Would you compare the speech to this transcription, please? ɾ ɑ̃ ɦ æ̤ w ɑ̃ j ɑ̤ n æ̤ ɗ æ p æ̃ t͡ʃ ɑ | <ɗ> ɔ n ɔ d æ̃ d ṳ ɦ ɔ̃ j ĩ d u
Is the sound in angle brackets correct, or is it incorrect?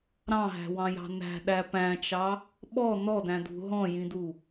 incorrect